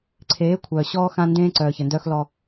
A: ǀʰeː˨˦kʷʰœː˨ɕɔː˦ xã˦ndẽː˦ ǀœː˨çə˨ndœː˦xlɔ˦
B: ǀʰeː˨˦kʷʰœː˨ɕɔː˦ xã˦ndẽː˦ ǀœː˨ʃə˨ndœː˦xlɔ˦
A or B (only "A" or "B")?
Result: A